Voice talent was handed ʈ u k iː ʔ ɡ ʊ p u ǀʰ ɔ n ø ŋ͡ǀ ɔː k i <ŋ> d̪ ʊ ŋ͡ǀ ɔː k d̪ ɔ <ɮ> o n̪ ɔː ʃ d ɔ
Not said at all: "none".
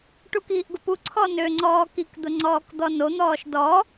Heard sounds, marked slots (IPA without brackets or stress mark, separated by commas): k, n